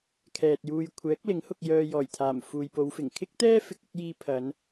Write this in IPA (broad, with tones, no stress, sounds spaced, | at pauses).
kʰ ɛː˨ t̚ j uː˧ j kʷʰ ɛː˨˥ k̚ l ɪ˨˥ ŋ h ʊ˧ k̚ j œː˧ j ɔː˨˩ j t̪ʰ aː˨˩ m f uː˨ j p o˨˧ w f ɪ˨˩ ŋ kʰ ɪ˥ k̚ t̪ ɛː˥ f ɪ˨ k̚ ɪ˥ k̚ j iː˧ pʰ ɐ˨˧ n